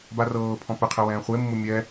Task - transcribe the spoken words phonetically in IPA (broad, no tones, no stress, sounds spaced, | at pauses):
b a r ɤː pʰ ɔ̃ p ɛ qʰ ɛ w ɛ̃ː χʷ e mː u mʲ ɛ